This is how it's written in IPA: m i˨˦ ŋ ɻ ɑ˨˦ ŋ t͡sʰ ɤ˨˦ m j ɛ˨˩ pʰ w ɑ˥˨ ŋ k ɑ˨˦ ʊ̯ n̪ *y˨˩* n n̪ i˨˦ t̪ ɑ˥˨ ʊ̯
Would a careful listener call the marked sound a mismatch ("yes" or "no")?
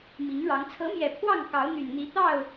no